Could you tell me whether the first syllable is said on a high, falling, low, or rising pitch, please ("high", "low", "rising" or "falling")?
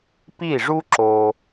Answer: falling